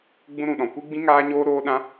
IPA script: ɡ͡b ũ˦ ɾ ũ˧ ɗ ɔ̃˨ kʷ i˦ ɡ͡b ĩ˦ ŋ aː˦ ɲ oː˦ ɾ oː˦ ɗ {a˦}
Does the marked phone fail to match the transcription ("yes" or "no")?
yes